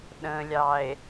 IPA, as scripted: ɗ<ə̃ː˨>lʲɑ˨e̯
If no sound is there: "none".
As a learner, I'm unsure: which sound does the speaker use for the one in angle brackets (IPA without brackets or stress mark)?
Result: ə̃ː˨